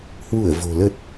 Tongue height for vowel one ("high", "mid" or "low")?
high